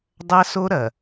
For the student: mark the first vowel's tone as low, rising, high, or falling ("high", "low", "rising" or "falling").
high